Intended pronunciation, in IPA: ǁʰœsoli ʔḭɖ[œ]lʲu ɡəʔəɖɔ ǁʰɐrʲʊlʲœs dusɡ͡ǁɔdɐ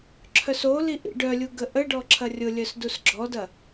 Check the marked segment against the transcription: correct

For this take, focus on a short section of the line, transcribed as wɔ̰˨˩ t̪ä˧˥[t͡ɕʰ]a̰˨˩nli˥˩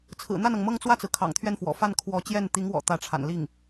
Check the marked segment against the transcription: incorrect: ʈ͡ʂʰ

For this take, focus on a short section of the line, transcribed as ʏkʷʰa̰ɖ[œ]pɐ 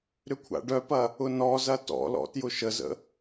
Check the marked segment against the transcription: correct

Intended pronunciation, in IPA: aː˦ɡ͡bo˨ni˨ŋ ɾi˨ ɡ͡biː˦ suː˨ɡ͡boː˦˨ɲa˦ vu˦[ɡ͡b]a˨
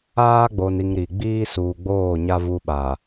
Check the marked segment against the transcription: incorrect: ɓ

